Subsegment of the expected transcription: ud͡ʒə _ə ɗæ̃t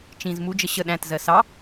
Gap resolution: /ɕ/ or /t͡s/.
ɕ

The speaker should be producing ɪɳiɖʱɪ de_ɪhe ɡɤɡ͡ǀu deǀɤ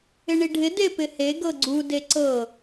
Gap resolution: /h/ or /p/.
p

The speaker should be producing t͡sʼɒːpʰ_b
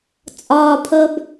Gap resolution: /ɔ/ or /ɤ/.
ɤ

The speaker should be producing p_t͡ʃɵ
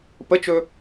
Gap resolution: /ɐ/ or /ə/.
ə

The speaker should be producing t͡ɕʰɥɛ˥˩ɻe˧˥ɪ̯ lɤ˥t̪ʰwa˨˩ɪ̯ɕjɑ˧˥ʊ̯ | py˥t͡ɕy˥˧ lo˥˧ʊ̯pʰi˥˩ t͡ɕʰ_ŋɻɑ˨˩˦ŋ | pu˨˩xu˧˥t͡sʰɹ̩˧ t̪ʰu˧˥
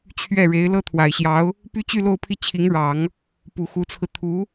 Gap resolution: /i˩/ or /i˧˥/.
i˧˥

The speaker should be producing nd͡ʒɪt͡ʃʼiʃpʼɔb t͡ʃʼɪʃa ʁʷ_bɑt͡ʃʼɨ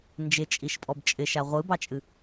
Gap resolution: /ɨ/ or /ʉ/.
ɨ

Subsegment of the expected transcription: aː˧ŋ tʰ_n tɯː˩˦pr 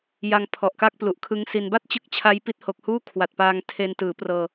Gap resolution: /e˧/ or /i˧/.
e˧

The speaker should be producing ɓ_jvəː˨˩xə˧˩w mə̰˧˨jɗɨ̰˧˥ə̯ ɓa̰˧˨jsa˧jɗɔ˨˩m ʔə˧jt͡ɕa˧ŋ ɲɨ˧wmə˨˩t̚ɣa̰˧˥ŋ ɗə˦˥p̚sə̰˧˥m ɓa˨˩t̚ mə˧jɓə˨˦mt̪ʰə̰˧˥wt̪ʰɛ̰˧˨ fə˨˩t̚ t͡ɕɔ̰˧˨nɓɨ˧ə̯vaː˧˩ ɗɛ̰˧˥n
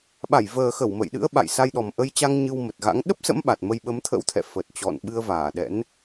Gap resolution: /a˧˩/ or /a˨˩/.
a˧˩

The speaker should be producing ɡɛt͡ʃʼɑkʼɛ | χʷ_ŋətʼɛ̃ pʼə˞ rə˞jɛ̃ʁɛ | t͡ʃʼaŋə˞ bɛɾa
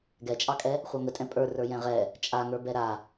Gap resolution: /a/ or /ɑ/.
a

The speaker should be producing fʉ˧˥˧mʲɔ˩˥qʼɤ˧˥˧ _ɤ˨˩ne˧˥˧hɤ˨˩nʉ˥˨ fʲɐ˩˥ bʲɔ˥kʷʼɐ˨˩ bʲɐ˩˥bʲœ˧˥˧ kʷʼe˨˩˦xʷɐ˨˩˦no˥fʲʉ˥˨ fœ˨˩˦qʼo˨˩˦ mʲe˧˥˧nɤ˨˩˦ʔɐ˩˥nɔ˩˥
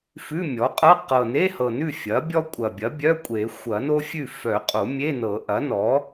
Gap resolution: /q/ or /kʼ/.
q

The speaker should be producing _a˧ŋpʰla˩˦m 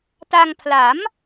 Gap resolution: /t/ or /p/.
t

